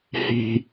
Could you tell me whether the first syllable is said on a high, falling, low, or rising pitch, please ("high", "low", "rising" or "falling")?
high